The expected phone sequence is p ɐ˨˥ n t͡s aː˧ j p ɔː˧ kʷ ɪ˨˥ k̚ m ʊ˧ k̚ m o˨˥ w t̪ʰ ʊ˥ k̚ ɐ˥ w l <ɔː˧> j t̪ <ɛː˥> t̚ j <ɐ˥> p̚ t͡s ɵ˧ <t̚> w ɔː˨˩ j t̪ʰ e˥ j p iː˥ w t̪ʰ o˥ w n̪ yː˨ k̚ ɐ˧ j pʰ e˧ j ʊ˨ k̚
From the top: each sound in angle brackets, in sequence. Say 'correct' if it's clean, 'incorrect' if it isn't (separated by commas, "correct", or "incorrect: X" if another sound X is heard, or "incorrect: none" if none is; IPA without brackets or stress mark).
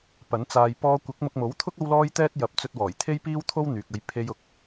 incorrect: ɔː˥, correct, incorrect: ɐ˨˥, correct